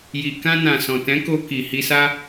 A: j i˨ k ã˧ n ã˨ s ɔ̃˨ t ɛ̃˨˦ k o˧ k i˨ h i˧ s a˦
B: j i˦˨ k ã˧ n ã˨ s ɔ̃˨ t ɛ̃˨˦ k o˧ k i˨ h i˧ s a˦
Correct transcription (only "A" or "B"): A